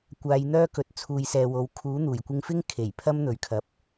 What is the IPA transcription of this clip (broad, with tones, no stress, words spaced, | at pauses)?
kʷaː˨˧jn̪œː˥kɵ˨t̚ t͡sʰuː˨jsɛː˨wo˨˥w kʰuː˨˥n̪uː˨˩j kʷɪ˧ŋfɪ˥ŋ kʰe˨˩jpʰɐ˥mn̪ɵ˨ɥ kʰɐ˨p̚